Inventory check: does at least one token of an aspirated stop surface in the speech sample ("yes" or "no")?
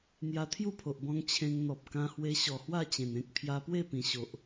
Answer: yes